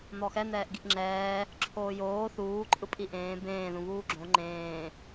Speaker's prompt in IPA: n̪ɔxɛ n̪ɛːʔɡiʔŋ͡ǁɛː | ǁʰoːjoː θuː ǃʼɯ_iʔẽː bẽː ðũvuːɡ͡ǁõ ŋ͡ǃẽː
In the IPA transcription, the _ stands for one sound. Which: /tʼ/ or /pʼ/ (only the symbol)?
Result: pʼ